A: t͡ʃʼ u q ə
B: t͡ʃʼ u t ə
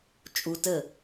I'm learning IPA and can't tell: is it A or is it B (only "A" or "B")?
B